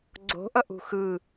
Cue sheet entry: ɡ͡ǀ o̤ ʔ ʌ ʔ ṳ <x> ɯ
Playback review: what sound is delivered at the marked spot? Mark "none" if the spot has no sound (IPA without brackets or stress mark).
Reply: x